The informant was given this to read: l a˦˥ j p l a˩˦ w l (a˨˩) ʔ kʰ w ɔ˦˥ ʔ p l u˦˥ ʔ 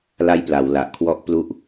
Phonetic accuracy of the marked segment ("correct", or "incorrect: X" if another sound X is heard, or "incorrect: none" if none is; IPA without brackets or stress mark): correct